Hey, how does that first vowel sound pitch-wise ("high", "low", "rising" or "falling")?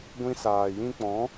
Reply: high